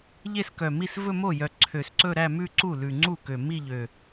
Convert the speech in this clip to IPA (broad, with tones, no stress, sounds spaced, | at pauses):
ʎ e˥˧ s k œ˨˩ m i˥˩ s v ɵ˥˧ m o˥˩ j œ˨˩ ǀʰ ø˨˩ s ǀ ɵ˥˧ ɾ æ˥˧ m ʉ˥˧ ǀ u˥˩ l ʉ˨˩ ŋ͡ǀ u˥˩ k ø˨˩ m i˥˧ ʎ ø˨˩